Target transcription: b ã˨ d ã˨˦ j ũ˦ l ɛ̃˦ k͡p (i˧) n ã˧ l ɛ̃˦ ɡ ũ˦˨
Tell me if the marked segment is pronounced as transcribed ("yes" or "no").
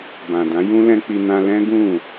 yes